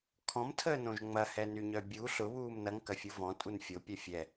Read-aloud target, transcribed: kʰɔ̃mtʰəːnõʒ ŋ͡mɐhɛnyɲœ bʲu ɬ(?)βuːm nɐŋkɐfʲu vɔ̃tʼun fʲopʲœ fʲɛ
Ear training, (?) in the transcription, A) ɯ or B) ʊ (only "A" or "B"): B